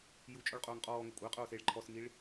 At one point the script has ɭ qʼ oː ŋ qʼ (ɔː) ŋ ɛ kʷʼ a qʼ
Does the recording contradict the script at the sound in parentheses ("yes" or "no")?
no